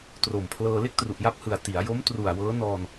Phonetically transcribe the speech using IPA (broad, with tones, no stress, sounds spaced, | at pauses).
t r o˨˩ m pʰ l ɤː˧ l e˥˩ k̚ t r u˨˩ ʔ j a˦˥ p̚ h ɯ˨˩ a̯ t i˩˦ a̯ j o˦˥ m t r u˨˩ a̯ w ɤː˦˥ n ɔː˧ n